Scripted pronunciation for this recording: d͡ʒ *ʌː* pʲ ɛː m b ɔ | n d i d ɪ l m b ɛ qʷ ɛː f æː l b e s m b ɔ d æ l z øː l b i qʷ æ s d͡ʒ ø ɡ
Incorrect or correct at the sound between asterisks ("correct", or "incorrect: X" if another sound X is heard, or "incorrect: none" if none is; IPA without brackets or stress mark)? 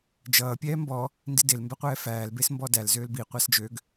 correct